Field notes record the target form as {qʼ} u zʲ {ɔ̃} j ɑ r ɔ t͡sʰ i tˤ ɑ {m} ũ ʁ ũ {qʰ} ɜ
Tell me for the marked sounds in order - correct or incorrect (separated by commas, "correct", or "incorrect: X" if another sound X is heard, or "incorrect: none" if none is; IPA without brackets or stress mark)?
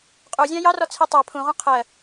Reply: correct, incorrect: ɑ̃, incorrect: pʰ, correct